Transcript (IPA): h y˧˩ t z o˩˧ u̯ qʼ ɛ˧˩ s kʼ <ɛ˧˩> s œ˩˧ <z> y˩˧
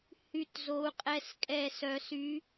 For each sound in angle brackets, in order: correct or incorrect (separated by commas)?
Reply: correct, incorrect